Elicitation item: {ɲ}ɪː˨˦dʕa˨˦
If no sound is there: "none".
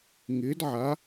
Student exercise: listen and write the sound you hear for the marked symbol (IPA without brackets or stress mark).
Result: ŋ